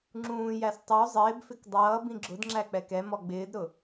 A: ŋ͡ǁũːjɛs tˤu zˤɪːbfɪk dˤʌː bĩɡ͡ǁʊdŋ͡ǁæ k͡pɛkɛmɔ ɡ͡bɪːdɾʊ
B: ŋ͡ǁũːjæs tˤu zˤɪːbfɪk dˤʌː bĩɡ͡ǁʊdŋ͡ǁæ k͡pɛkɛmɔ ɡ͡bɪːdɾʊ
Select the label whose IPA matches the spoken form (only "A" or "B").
B